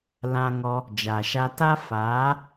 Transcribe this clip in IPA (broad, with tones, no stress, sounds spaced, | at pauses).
l ã˧ ŋ ɔ˧ | d͡ʒ a˨ ʃ a˧ t a˦ f aː˨˦